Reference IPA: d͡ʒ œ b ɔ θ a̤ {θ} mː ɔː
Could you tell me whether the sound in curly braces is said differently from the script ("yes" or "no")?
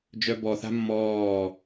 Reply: yes